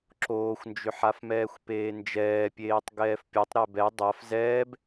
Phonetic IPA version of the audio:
ǁ oː xʷ n d͡ʒ ʏ ħ a f m ɛː xʷ p eː n d͡ʒ ɛː pʲ eː tˤ ɡ ɛː f pʲ o tˤ ɾ ɛ b ɛ dˤ a f z ɛː b

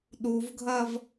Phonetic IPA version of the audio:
ɗ u v ɡʱ ɐ v

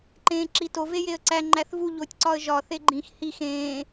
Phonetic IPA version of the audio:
ǃ ẽː ǁ i t o v e j e ə̯ ǀ æ ŋ͡ǃ æ θ v u ʎ o tʲ ǀ ɒ ə̯ ʒ ɒ θ e ɡ͡ǃ ĩ x h i x ẽː

